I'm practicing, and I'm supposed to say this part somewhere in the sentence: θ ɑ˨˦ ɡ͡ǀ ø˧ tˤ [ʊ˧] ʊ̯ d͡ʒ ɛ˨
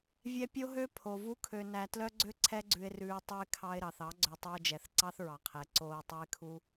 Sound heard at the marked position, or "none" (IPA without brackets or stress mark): ʉ˧